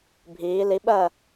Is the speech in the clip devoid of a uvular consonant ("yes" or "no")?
yes